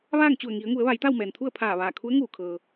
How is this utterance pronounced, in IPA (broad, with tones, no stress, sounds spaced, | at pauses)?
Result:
ʋ aː˥˨ ŋ t͡ɕ u˧˩ ə̯ ŋ i˩˧ ə̯ ŋ u˩˧ ə̯ ʋ a˩˧ j t̪ a˥˨ w m ɛː˩ n t̪ʰ u˥˨ ə̯ pʰ aː˧˩ ʋ aː˧˩ kʰ u˧˥ ə̯ ŋ uː˧˩ kʰ ɤː˩